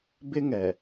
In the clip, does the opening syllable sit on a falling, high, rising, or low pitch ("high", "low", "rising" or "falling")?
high